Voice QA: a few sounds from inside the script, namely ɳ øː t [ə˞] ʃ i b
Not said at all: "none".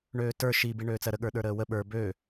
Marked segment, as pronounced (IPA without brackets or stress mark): ə˞